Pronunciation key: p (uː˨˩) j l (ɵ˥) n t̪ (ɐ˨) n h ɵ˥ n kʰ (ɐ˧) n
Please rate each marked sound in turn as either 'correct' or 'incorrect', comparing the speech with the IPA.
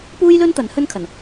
incorrect, correct, incorrect, incorrect

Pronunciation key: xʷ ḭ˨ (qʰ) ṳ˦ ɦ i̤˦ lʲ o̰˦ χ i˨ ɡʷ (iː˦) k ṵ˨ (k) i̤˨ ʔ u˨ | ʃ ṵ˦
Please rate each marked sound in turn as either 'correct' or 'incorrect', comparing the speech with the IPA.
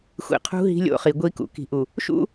correct, incorrect, correct

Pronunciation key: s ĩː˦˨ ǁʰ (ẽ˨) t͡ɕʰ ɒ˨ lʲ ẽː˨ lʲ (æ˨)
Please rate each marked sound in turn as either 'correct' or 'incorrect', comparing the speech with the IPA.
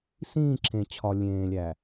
correct, correct

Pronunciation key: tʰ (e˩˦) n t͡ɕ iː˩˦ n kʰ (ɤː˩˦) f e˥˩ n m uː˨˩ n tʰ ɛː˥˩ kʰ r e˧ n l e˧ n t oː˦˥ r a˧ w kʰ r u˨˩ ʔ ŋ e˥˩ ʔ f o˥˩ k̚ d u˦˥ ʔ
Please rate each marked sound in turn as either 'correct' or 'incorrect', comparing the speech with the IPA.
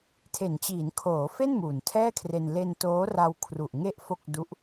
correct, incorrect

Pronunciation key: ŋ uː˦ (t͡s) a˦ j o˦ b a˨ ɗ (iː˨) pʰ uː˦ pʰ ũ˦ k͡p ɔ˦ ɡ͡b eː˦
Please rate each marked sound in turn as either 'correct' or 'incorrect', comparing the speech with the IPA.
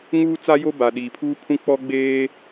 correct, correct

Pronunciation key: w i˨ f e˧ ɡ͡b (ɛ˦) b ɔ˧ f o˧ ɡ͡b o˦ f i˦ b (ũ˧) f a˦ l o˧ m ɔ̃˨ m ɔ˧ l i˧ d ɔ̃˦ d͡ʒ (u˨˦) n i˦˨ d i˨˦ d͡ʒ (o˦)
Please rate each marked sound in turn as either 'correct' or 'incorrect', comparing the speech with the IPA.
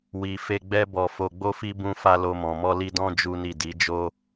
correct, incorrect, incorrect, correct

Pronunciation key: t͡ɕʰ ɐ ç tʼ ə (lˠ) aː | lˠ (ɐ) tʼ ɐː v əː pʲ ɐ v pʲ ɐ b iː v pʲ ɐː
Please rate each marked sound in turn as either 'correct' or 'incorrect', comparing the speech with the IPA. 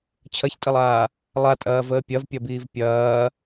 correct, incorrect

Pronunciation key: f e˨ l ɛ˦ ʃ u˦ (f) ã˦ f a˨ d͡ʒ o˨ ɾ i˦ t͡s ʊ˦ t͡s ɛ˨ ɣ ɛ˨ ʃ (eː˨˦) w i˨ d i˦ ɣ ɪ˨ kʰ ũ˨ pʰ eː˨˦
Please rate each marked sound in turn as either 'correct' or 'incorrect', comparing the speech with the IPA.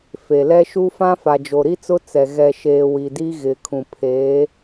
correct, incorrect

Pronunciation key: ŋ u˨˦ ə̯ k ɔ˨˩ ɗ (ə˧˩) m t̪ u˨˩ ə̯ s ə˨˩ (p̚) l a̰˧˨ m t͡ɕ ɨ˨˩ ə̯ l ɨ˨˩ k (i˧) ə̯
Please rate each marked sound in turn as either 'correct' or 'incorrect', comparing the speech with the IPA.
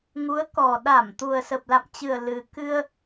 incorrect, correct, incorrect

